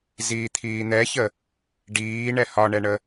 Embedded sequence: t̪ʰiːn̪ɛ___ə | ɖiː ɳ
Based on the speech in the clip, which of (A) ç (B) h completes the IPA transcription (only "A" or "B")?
A